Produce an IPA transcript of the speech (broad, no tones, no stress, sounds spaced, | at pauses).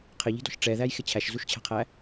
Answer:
qʰ ɪ ʎ i̤ d ɔ̤ ʃ ʈ͡ʂ ɛ ð æ j x ɪ t͡ɕʰ æ ʃ z u ʃ t͡ɕʰ æ̤ qʰ æ